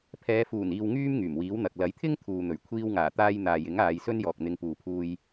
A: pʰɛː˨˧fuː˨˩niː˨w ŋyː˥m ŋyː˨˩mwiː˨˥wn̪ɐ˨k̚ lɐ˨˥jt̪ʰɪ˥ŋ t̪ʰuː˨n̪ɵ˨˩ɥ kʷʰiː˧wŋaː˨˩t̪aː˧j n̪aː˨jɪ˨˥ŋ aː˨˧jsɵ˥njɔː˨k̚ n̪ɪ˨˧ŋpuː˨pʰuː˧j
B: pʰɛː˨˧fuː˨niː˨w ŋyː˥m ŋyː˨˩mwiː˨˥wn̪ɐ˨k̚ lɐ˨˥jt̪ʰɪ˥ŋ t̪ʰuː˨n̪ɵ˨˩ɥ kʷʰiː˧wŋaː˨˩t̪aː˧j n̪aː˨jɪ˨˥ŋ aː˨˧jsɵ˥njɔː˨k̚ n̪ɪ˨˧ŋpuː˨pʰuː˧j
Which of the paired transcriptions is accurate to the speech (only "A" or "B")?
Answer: A